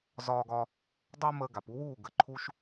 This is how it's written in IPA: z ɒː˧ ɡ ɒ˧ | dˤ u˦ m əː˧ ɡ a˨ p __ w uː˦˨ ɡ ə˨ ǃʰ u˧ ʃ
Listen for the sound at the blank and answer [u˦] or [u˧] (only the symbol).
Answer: u˧